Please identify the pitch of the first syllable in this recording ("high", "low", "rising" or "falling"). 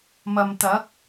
low